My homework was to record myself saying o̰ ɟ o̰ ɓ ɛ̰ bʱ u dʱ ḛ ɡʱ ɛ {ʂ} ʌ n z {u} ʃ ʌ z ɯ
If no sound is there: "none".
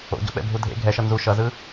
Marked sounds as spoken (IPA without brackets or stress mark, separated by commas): ʃ, u